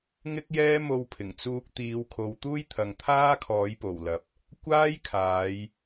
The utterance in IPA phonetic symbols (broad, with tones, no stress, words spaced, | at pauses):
ŋɪ˥k̚jɛː˥ mo˧wpʰɪ˨˩ŋ t͡suː˧k̚ t̪iː˨˧wkʰo˨˧wt̪uː˥j t̪ʰɐ˨ŋt̪ʰaː˥ kʰɔː˨˥jpo˨˩wlɐ˨p̚ | kʷaː˥jkʰaː˨˧j